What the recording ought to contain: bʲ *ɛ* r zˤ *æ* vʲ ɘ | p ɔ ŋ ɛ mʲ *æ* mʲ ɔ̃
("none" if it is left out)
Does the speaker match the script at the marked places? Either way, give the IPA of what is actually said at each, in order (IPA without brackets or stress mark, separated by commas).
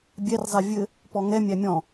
ɛ, ɛ, æ